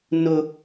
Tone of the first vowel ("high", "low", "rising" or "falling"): high